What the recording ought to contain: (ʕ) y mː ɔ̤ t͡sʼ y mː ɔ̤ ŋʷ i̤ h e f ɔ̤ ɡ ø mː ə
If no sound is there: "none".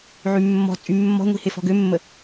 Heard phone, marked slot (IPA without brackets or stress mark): ʕ